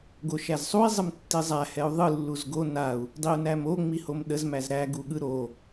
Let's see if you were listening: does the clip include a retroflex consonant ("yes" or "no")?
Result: no